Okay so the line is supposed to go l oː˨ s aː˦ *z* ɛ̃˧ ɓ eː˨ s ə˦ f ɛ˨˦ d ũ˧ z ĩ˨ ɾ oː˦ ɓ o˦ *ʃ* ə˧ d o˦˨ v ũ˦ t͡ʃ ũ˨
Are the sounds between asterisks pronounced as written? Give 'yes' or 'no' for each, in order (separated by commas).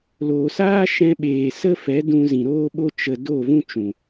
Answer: no, no